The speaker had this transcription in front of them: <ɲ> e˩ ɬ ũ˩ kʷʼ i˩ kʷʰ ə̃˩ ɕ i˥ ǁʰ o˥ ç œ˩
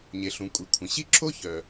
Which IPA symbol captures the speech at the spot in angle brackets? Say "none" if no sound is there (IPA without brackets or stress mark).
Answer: ɲ